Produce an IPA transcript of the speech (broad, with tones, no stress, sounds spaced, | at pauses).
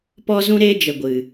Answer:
p ɔ˦ z ũ˦ ɾ eː˦ d͡ʒ ə˨ ɡʷ ɨ˨